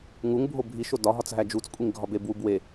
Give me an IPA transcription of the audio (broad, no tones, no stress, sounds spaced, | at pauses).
ŋ u ŋ bʱ o bʱ i ʃ o d ɒ ɦ ɒ t͡s ɦ æ d͡ʒ u t͡s kʷʼ i ŋ ɡʱ ɒ b e b w u b w e